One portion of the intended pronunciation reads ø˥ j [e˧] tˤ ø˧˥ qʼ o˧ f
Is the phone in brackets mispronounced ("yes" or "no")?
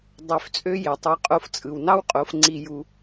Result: yes